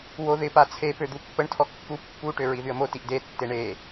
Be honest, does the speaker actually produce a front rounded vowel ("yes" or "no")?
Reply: yes